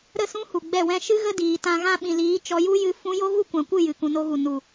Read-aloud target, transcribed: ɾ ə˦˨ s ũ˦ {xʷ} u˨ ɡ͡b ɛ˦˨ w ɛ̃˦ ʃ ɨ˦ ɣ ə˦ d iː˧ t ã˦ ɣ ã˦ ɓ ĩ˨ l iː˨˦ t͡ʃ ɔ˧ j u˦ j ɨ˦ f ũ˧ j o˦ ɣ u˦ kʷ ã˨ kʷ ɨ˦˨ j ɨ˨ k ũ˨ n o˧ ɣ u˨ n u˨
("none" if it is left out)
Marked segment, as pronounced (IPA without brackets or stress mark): h